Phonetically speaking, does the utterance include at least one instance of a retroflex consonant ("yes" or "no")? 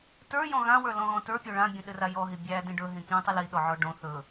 yes